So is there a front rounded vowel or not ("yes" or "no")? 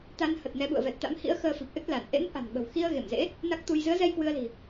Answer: no